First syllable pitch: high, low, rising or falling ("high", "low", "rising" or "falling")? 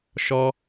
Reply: high